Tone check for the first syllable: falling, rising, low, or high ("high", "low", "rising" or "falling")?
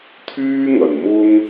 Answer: high